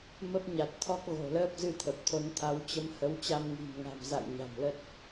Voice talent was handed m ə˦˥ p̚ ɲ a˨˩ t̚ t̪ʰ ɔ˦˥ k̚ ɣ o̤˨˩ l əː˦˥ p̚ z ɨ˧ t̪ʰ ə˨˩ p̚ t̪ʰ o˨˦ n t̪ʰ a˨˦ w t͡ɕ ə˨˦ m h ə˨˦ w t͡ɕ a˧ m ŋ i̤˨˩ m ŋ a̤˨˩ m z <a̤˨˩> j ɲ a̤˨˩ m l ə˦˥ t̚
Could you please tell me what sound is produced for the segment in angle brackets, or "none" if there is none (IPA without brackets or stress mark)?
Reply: a̰˧˨